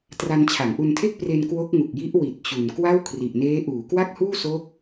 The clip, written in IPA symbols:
t r a˧ n t͡ɕʰ a˩˦ ŋ ʔ u˧ n tʰ e˥˩ k̚ p r e˧ n k w o˦˥ k̚ ŋ u˨˩ k̚ j i˦˥ ʔ w i˨˩ t̚ t͡ɕ u˨˩ n k w a˥˩ w kʰ r i˨˩ ʔ n eː˦˥ ʔ uː˩˦ k w a˥˩ k̚ h uː˥˩ s oː˦˥ k̚

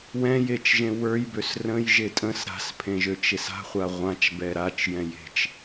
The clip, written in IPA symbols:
w ɛ̃ j e t͡ʃ ʒ ẽ w ə˞ j b ø s r ə̃ j ʒ e tʼ ə̃ s ɾ a̤ s pʰ ẽ ʒ ø t͡ʃ e s a̤ χʷ a ʁʷ ã t͡ʃ b ɛ ɾ a t͡ʃ j ɛ̃ j e̤ t͡ʃ

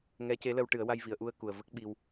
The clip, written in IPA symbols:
ŋ ɛ˧˥ c e˧˥ l ə˧ w ʈ ɨ˨˩˦ ə̯ w a˧ j v i˨˩˨ ə̯ ʔ u˧ ə̯ k u˨˩ ə̯ v ə˦˥ k̚ ɓ i˧ w

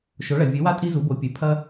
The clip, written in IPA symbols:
ʃ o˩˧ ɭ ɐ˩ vʲ ɨ˩˧ w a˧ tʼ i˧ z u˩˧ b o˩˧ pʲ ʉ˩ pʰ ɐ˧

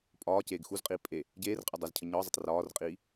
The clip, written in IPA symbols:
pʼ ɒː c eː ɡ x u z qʼ iː pʼ e | ɟ eː r qʼ ə dˤ ə z cʰ ə ɲ ɒ zˤ ə tˤ r ɒː r qʼ iː

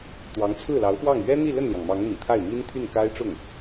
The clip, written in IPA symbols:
t̪ w ɑ˧˥ ŋ t͡sʰ ɹ̩˥˩ l ɑ˧˥ ʊ̯ f w ɑ˥˩ ŋ ɥ ɛ˥ n̪ i˥˧ l ə˥˩ n l j ɑ˩ ŋ m ɑ˧˥ ŋ n̪ ḭ˨˩ t̪ʰ a˥˩ ɪ̯ m i˥ n t̪ʰ y˥˩ n k a˥ ɪ̯ ʈ͡ʂ ʊ˥˩ ŋ

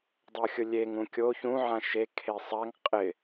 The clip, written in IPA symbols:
dˤ o xʲ ʊ lʲ e ŋ ũ kʲ o ç ũ ʕ ã ʃ e kʰ e sˤ a ŋ qʼ ɪ

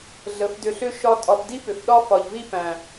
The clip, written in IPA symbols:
ɮ ə˨˦ f d ʏ˧ ɬ ʏ˦ ʃ ɒ˦ tʼ ɒ˧ f d i˦ p ʏ˨ f ɗ ɒ˦ f ɒ˨ ʎ v i˦ p æ̃˨

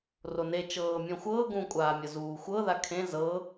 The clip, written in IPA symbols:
r o n e t͡ʃ ɤː mʲ ɔ̃ xʷ ɤː ɡ ũ kʷʼ aː mʲ ɤ z uː xʷ ɤ ð a kʰ ẽ z ɤ

